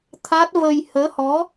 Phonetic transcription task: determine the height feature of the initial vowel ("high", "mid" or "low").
low